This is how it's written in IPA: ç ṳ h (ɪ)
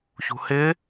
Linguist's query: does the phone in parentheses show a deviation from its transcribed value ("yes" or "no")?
no